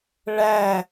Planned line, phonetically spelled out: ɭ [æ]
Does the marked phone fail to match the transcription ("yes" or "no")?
no